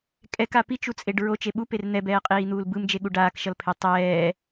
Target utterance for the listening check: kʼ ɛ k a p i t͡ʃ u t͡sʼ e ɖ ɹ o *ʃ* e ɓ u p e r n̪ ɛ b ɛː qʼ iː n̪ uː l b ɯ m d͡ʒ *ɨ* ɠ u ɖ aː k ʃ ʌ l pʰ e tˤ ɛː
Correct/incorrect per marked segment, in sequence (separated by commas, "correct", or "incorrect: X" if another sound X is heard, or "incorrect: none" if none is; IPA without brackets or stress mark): incorrect: t͡ʃ, incorrect: e